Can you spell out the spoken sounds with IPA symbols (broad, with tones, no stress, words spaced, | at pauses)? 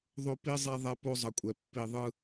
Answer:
ðˤo˦pi˦ zˤɛ˦ ðˤɛ˦ po˦zˤʌ˨kʷʼɛ˨ pːi˨ðˤɯ˦